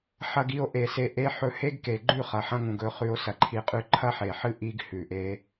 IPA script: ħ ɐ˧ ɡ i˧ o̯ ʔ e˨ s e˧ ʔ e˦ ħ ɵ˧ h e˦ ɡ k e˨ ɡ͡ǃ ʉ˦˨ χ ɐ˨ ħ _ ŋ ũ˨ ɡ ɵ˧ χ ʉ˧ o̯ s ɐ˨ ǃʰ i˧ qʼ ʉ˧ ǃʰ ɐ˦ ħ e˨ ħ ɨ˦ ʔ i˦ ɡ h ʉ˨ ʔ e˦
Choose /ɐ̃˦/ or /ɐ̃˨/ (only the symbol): ɐ̃˦